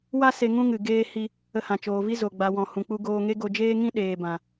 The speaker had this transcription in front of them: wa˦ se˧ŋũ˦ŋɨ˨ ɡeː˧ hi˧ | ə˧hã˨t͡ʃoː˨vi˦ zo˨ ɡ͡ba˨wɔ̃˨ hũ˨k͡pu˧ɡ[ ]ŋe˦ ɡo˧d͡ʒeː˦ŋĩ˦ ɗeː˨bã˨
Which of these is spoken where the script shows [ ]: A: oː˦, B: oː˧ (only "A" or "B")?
B